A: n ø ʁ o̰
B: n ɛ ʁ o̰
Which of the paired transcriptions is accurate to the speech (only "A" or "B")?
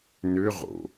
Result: A